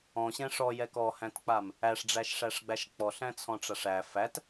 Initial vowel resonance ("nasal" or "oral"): nasal